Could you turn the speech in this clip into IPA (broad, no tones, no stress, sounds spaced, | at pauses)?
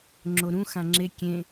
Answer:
ŋ͡ǁ o ɾ ũ x ã ŋ͡ǁ e kʲ ẽ